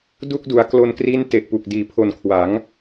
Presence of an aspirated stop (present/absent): present